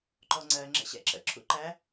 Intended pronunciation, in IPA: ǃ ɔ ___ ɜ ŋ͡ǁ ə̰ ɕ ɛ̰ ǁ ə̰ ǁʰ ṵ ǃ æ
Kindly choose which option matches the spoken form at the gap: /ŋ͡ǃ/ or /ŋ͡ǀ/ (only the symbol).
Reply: ŋ͡ǀ